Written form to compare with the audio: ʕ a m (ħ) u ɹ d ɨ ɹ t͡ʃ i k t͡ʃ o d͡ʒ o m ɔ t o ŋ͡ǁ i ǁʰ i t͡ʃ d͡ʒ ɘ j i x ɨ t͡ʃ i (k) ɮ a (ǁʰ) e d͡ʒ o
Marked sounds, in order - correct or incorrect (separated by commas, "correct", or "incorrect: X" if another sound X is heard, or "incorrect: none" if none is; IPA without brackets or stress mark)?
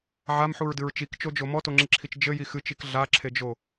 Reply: correct, correct, correct